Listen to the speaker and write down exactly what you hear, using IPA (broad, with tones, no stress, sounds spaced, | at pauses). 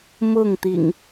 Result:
m ʊ˥˨ ŋ t̪ ḭ˨˩ ŋ